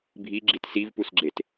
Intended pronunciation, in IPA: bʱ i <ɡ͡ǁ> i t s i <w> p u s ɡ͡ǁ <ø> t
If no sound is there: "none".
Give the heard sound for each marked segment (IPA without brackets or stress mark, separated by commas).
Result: ɡ͡ǁ, v, e